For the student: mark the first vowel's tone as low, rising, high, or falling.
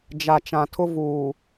low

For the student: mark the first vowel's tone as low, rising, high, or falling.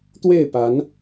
falling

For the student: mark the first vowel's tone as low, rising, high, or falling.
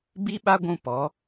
high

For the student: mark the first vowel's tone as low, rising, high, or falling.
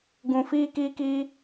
low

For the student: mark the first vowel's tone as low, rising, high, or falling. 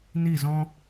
falling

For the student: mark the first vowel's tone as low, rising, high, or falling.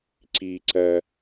low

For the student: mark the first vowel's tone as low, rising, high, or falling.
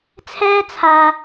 high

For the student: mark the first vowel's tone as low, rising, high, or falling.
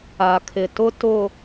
low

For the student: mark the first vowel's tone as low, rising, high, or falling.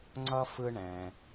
high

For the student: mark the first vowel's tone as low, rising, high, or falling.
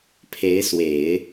rising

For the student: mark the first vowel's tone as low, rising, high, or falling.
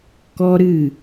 high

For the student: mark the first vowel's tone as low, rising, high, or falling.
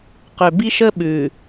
low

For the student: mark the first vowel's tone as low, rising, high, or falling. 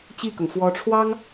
falling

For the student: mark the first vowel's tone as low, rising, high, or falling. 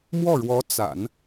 falling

